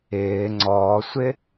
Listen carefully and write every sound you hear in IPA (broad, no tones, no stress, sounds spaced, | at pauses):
ɪː ŋ͡ǀ ɔː sʷ ɪ